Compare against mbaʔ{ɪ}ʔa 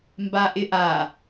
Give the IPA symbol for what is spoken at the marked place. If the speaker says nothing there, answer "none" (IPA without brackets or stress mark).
ɪ